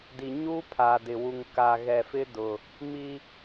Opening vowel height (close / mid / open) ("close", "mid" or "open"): close